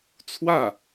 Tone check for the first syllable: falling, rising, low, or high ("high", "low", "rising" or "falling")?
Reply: falling